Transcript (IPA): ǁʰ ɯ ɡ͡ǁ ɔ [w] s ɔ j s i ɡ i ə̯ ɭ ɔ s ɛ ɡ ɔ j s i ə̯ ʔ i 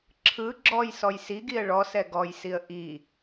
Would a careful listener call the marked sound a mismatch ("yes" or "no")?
yes